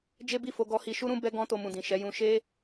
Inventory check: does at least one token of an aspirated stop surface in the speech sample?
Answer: no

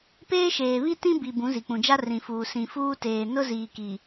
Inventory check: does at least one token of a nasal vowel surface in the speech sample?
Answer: yes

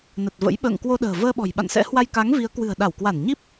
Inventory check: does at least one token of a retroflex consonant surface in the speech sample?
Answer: no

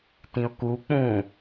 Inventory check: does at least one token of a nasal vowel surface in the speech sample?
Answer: yes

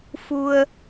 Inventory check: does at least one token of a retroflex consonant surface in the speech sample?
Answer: no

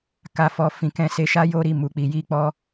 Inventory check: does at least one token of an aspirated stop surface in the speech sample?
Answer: no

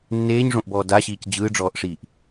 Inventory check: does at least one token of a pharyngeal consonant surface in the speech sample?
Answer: no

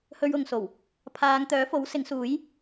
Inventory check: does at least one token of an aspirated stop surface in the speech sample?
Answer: yes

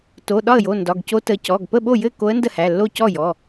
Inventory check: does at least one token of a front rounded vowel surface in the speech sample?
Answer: no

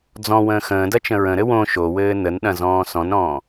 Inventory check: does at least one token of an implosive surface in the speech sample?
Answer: yes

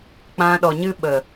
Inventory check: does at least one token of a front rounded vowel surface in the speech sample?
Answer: no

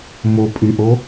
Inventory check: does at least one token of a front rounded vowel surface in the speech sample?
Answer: yes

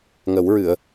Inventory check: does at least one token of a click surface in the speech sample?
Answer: no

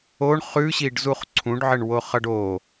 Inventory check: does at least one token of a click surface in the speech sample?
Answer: yes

